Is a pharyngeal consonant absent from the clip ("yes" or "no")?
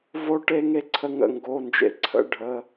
yes